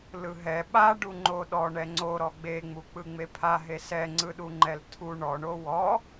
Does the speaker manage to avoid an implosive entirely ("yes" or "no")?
no